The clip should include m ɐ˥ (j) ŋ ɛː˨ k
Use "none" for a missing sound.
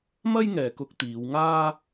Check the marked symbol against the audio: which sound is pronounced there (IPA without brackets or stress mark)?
j